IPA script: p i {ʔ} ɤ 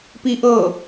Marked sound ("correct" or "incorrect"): correct